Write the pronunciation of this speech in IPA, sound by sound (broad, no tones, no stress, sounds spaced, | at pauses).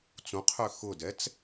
t͡s ũ qʰ ø x ʊ d ɛ t͡s